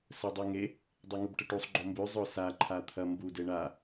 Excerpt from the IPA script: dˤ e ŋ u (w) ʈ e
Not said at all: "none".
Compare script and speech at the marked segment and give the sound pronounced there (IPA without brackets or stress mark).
b